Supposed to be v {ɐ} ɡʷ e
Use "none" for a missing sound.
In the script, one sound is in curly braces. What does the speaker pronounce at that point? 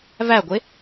æ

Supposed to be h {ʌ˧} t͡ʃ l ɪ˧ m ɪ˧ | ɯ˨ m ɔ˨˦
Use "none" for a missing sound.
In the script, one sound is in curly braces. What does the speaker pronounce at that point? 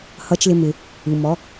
ʌ˧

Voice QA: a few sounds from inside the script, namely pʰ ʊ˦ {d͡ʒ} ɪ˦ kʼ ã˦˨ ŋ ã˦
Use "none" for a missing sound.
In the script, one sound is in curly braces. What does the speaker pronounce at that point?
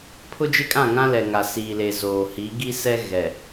d͡ʒ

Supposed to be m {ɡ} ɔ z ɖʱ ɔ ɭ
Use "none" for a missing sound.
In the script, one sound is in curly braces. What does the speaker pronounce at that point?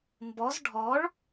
b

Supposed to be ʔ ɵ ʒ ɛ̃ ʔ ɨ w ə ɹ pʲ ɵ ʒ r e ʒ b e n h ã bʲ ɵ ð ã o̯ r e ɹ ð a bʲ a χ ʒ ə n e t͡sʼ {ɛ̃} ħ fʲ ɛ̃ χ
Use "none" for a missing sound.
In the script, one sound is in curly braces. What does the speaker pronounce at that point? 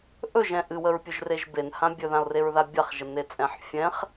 ɛ̃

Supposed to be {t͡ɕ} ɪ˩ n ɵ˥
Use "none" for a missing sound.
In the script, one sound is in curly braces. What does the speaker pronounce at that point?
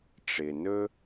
ʈ͡ʂ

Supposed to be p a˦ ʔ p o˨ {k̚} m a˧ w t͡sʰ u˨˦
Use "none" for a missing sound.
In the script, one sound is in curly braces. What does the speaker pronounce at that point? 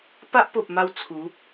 p̚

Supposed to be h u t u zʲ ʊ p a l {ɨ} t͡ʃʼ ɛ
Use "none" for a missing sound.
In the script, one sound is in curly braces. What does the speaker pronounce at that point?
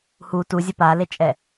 e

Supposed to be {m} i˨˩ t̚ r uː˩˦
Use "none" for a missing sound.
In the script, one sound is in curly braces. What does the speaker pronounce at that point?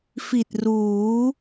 f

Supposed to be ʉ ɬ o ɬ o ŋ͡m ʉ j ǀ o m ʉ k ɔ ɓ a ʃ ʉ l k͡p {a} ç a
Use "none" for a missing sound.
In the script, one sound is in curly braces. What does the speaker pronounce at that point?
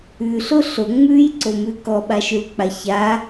a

